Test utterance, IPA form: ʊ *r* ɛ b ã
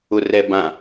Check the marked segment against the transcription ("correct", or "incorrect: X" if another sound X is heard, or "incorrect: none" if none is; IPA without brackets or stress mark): correct